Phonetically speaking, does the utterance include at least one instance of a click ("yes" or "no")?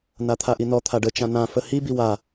no